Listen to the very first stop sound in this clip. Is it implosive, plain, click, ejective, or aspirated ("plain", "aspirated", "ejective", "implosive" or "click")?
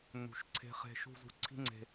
click